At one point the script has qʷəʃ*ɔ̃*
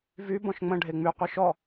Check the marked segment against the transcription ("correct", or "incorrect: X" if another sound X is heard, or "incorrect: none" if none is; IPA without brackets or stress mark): incorrect: ɔ